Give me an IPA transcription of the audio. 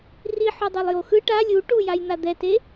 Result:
r i ħ o dˤ o lˠ j o x ɯ ʈ a lʲ u ʈ u j a j n̪ a d̪ ɛ t e

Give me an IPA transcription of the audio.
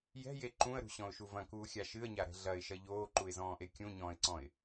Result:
j ɛ̤ j e ǃ ũ ə̯ ɾ ṳ ɕ ɔ̃ ʊ̯ ʃ u v ɐ̃ k uː xʲ a ʃ ɨ ə̯ ɲ a ɾ ɛ̤ ɮ ɐ ɪ̯ ʃ ɐ ʎ oː ǃ u ɪ̯ z ɔ̃ː ʔ e kʲ ũ ɲ ɔ̃ː ɪ̯ ǀ ɔ̃ ɪ̯

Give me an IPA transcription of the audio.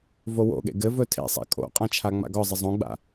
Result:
v o w o̰ ɠ ḛ ɡ ɘ v ɵ tʰ ḛ sˤ a̰ kʼ o̰ qʼ ã t͡ʃʰ a ŋ͡m a̰ ɡ ɒ zˤ ɪ zˤ õ ɡ͡b a̰

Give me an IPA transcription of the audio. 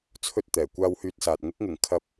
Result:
t͡sʰ ɵ˥ t̚ t̪ ɛː˨˩ kʷ aː˥ w h yː˥ t̚ s aː˧ t̚ ŋ ɪ˥ k̚ ŋ ɪ˨˩ ŋ kʰ ɐ˥ p̚

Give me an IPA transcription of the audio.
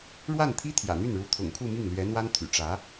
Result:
ɻ w a˥˩ n t̪ʰ i˥ t̪ʰ j ä̰˨˩ n̪ y˥˩ n ɻ u˧˥ t̪ʰ ʊ̰˨˩ ŋ kʰ u˥˧ m i˥˩ ŋ l ɥ ɛ˧˥ n̪ w a˥ n t̪ʰ y̰˨˩ ʈ͡ʂ ä˧˥

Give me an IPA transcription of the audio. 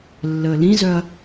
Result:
lː əː l ĩ z œ ɐ̯

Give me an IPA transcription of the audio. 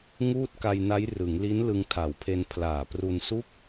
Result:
ŋ uː˥˩ t̚ k a˧ j n a˦˥ j r ɯ˩˦ ŋ l i˦˥ n l ɯ˧ ŋ tʰ a˨˩ w pʰ e˧ n pʰ l aː˨˩ p r u˧ n s u˥˩ k̚

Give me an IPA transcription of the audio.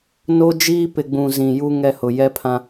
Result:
n o˦ d͡ʒ iː˦ p ɪ˨ ɡ͡b ũ˨ z ĩ˨ j u˦ ŋ ɛ˦ h ʊ˨ j ɛ˦ pʰ ã˦

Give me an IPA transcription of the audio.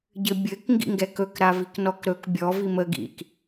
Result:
ɟ ɘ bʲ ɘ k ŋ ɡ ḭ ŋ ɡ ɛ k ɵ k ɾ a v i k n ɔ k ɾ ɵ k bʲ ɔ v i m ə ɡ ḭ k

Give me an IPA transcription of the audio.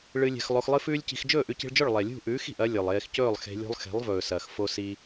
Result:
ɭ ɨ˧ lʲ e̤˧ x lˠ o˧ x lˠ ɨ˦ f ʉː˦ lʲ c i̤˧ x d͡ʒ ɵː˦˨ ʔ ʉ˧ c i̤˧ ɭ d͡ʒ ɵ˦˨ ɭ lˠ e˨ lʲ ṳ˦˨ ʔ ʉː˨˦ x i̤˨ ʔ ɐ˦ lʲ ɵ˨ lˠ eː˧ x c ɵː˦˨ lˠ x e̤˧ lʲ ṳ˧ lˠ x e̤˨˦ lˠ v ɵː˨ s ɐː˨ x f o˧ s i˧

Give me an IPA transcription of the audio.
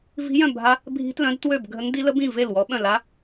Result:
v i̤˧˥ j œ̃˥˩ bʱ a˧˥ | bʱ i̤˧˥ t l œ̃˧˥ d t w ø˥˩ b ɡʱ ə˧˥ ŋ d i˧˥ l ə˧˥ b ĩ˥˩ v e˥˩ l w ɔ˧˥ ɓ œ̃˥˩ l a˧˥

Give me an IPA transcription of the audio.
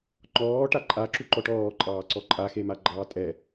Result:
ŋ͡ǃ ɔː ʈ a ǃʼ a ǁ u ǃ ɔ ʈ ɔː ǃʼ ɑː ǀ ɔ ǃʼ a x e m a ɡ͡ǃ ɑː tʼ ɛ

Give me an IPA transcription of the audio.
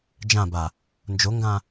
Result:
d͡ʒ ã b a | n d͡ʒ o ŋ ɡ ã

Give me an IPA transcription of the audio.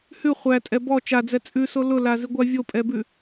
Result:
h ʉ χʷ æ tʼ ɛ b ɔ t͡ʃ a d͡z ɛ t͡sʼ ʉ s o l ʊ l a z i ɡʷ a vʲ o pʼ ɛ b ʉ

